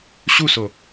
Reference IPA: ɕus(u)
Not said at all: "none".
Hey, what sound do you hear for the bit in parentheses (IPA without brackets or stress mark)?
o